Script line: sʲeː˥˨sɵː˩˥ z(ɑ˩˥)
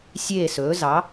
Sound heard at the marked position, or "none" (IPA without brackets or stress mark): ɑ˩˥